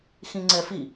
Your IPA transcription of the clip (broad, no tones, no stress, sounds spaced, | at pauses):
x ĩ ŋ͡ǀ ɛ f i